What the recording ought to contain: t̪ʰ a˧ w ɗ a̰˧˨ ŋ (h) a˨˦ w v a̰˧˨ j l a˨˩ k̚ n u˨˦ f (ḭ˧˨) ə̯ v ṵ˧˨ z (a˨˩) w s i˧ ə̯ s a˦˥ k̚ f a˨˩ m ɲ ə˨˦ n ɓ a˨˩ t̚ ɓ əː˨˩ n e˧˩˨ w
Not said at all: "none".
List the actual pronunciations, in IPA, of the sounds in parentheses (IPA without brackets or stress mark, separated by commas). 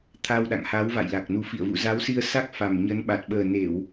h, ḭ˧˨, a˨˦